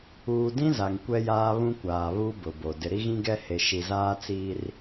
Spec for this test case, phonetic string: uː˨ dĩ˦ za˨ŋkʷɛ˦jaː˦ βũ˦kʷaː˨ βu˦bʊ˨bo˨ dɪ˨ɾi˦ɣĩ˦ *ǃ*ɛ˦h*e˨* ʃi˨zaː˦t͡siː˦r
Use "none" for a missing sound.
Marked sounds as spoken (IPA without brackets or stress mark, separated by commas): ɡ, e˨